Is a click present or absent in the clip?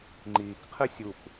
present